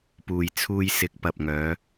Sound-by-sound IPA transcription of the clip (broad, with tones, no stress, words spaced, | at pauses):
puː˨jt͡sʰuː˧jsɪ˨˥k̚ pɐ˨p̚ŋœː˨˧